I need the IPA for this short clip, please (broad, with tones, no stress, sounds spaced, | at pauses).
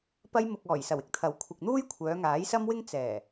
p ɐ˧ j m ʊ˨ k̚ ɔː˨˩ j s ɐ˨˩ w ɪ˥ k̚ t̪ʰ ɐ˨˥ w kʷʰ ɪ˨ k̚ n̪ uː˥ j kʷʰ œː˨˧ ŋ aː˨˥ j s ɐ˥ m w ɪ˥ ŋ t͡s ɛː˨˩